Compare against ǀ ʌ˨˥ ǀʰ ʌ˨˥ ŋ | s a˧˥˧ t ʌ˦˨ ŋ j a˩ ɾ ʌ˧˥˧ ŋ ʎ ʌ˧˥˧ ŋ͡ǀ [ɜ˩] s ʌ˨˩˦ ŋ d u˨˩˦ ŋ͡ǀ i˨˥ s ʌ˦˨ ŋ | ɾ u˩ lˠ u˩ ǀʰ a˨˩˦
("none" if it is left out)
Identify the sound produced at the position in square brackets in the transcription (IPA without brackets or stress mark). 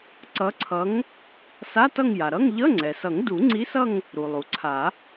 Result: ɛ˩